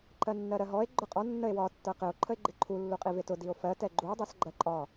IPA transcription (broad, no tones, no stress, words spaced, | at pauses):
ǃɜnːɜɾɜɦɔe̯ ɡ͡ǃʊqʼɔ nːəe̯wɒ tːɜqɪo̯ ǃʰəe̯ɡ͡ǃɪǃʰu lːuqʼivɪtʊ dio̯fɜ tɛɡ͡ǃuo̯ dˤɜsɡ͡ǃɜǃʼɒ